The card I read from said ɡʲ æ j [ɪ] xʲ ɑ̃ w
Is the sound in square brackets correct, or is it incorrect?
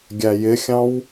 correct